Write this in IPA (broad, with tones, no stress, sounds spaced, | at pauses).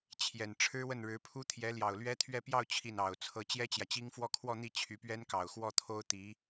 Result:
t͡ɕʰ j ɛ˨˩ n ʈ͡ʂʰ ɻ̩˥ w ə˥˩ n ɻ ɻ̩˧˥ pʰ u˥ t̪ʰ j ɛ˧˥ l j ɑ˨˩ ʊ̯ l ɥ ɛ˥ t̪ʰ ɥ ɛ˥˧ p j ɑ˥˧ ʊ̯ t͡ɕʰ i˥˩ n ɑ˨˩ ʊ̯ t͡sʰ ɤ˥ t͡ɕ j ɛ˥ t͡ɕ j ä˨ t͡ɕ i˥ ŋ f w ɔ˥˧ kʰ w ɔ˥˧ n̪ i˥˩ t͡ɕʰ y˧˥ p ɥ ɛ˥ n k ɑ˨˩ ʊ̯ x w ɔ˥˩ t̪ʰ o˥ ʊ̯ t̪ i˧˥